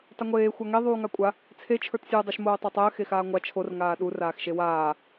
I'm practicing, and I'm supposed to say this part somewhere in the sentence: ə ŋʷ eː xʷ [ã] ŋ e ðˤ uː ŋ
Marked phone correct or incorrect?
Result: incorrect